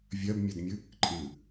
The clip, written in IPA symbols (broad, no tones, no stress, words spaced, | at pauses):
vʲɜbmʲɜdmʲɨ | ǃʼɨ